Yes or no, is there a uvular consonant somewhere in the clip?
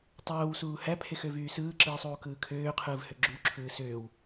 yes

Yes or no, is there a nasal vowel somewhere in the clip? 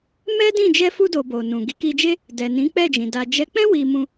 yes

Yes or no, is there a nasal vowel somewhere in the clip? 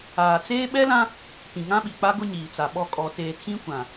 yes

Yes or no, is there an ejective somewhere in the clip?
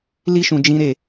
no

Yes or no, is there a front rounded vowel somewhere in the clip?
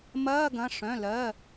yes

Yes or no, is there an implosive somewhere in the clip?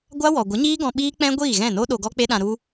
yes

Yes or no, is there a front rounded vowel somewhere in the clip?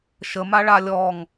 no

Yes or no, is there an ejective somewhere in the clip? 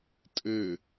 yes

